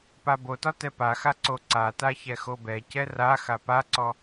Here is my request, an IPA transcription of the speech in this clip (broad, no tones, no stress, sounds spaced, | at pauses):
p a b o t ɒ t ɛ p a x a ǀ o ǀ a t a ç ɛ x o b ɛ c ɛ r a x a p a ǀ ɔ